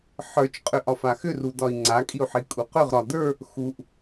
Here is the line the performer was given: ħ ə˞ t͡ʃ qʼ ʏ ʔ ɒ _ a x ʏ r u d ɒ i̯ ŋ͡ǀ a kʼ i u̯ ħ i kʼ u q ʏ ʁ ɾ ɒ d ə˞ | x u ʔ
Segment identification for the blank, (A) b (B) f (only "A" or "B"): B